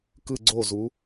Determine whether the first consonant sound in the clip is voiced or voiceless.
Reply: voiceless